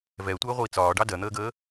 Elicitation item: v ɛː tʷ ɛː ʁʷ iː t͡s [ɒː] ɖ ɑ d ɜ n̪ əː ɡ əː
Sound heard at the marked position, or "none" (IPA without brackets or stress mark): ɒː